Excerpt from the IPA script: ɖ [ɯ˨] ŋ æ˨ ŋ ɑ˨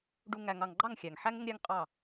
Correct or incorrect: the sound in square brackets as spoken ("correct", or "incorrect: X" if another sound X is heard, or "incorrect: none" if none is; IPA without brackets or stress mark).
incorrect: u˨